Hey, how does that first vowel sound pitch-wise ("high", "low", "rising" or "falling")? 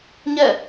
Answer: falling